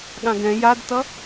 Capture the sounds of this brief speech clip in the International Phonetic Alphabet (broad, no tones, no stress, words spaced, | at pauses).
ɠãɡɛ̃ jadtʌ